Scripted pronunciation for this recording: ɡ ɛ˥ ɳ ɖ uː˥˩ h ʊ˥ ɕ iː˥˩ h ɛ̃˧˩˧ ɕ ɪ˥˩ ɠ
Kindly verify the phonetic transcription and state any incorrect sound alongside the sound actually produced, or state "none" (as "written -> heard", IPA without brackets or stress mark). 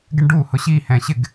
ɠ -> ɡ